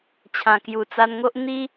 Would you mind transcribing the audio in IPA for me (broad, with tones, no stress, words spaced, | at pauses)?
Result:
t͡ɕʰã˨˩kju˨˩t͡sa˧nŋo˦ʔ n̪i˧